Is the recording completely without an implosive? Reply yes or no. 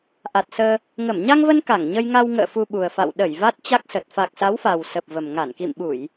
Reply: no